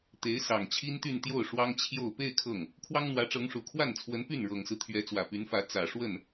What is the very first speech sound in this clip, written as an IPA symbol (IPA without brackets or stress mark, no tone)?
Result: t̪